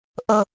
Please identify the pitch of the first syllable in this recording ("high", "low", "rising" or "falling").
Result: high